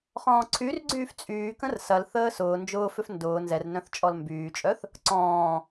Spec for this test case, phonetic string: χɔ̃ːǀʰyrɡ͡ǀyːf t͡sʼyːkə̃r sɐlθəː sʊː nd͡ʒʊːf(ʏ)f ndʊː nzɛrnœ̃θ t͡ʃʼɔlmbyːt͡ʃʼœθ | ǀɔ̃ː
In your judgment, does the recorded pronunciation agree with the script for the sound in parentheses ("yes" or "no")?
yes